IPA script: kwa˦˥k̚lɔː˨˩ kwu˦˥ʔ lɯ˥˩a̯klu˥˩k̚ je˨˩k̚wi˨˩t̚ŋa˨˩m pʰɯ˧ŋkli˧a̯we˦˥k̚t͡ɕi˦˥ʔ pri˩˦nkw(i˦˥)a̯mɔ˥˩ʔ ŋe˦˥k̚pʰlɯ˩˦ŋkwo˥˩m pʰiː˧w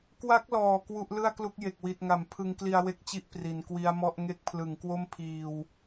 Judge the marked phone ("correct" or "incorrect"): correct